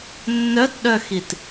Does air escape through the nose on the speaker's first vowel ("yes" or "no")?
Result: no